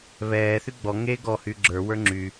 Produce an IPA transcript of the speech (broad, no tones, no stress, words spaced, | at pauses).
βɛː θyɡ͡bɔ ŋe ɡɔ hyɡ͡ǁə˞ wə˞ŋ͡ǁy